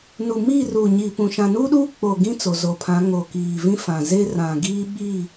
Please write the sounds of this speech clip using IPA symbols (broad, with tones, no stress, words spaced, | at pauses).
nu˨miː˦˨ ruː˨ɲiː˨pũ˨ ʃã˨nuː˦ɗuː˦ k͡po˨ɡĩ˦ t͡so˨zo˨pʰã˨˦ ŋo˨kiː˨ vĩ˦fã˨zeː˦ rã˨ɡiː˦ ɓiː˦˨